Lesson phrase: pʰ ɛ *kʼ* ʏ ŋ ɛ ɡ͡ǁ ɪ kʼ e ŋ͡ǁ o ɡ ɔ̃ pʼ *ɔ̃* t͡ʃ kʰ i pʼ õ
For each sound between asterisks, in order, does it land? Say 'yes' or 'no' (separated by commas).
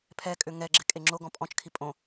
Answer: yes, yes